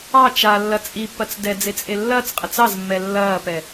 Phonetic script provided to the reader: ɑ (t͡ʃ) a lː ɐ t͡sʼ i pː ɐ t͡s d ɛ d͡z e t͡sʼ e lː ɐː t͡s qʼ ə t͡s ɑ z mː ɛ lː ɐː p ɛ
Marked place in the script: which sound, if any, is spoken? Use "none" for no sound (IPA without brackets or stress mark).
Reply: t͡ʃ